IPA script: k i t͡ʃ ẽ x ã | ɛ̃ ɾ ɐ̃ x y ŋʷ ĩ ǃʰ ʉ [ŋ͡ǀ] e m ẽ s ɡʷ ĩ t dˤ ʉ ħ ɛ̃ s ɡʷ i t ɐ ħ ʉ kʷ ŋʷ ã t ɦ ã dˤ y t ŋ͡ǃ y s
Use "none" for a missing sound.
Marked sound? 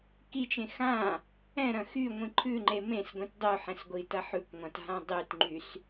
ŋ͡ǃ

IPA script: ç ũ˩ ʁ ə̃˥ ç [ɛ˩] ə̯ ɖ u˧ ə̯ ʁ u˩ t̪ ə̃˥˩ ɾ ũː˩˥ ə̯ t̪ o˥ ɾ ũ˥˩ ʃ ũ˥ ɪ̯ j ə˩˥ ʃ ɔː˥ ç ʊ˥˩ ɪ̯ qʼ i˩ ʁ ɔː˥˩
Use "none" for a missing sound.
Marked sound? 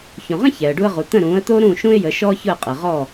ɛ˩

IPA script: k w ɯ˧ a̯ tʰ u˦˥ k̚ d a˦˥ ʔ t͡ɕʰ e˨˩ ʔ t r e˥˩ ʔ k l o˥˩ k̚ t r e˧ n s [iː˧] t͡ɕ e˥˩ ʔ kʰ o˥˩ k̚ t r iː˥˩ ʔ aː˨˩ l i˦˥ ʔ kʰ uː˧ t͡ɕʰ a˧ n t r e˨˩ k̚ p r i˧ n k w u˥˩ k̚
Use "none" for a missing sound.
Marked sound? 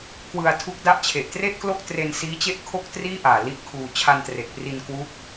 iː˦˥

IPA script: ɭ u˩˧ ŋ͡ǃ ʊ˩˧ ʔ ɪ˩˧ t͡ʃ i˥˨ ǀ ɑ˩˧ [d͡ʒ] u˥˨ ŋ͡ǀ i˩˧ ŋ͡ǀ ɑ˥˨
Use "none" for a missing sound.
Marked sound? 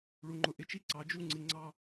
d͡ʒ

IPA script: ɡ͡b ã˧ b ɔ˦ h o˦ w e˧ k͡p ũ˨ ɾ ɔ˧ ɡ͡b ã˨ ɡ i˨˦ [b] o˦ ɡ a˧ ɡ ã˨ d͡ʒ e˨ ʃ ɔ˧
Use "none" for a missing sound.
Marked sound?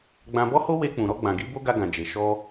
b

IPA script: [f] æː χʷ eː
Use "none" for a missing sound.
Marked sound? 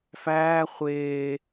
f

